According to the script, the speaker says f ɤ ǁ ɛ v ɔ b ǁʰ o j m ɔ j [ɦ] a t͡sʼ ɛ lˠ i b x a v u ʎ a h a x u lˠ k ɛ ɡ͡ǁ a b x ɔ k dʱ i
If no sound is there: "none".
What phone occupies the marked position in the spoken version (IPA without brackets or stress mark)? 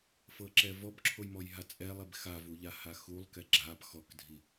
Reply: ɦ